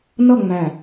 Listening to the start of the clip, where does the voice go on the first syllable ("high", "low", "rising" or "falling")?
falling